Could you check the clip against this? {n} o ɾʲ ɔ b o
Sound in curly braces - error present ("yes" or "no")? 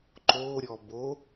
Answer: yes